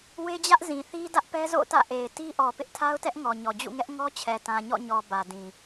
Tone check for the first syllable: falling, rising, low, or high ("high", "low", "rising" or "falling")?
high